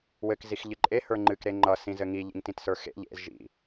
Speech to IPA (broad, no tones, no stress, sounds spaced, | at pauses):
w ɘ k z i x ʎ ɨ ǃʼ e h ə˞ ŋ͡ǃ ɨ k ɾ e ŋ͡ǃ ʌ s ĩ z ɘ ŋ i ʎ ḭ ŋ t ĩ t s ə˞ x ḛ ʎ ḛ z ʒ ḭ